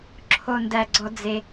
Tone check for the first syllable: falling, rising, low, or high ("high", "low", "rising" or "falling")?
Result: low